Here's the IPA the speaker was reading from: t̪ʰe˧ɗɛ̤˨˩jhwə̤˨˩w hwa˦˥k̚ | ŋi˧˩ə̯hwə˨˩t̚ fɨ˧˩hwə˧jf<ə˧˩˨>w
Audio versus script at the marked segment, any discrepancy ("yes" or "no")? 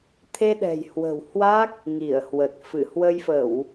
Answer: no